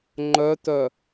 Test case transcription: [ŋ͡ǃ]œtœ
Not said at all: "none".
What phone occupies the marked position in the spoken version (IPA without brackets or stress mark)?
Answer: ŋ͡ǃ